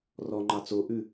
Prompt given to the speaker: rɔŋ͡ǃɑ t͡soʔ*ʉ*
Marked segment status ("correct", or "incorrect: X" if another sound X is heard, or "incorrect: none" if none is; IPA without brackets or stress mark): correct